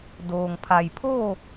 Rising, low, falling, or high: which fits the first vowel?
low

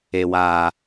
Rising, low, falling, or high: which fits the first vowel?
low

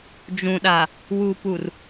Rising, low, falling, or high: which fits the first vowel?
low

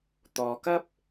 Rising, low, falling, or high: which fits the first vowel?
low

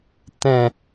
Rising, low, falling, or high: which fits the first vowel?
low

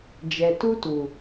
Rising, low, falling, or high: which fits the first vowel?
low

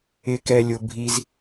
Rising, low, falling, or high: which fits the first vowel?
low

